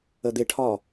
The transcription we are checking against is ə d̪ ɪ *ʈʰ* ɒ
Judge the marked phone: correct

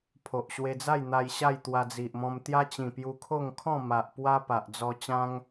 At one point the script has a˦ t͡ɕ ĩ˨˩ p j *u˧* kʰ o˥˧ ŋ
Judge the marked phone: correct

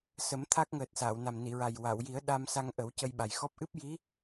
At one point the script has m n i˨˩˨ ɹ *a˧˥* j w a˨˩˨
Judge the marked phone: incorrect: a˨˩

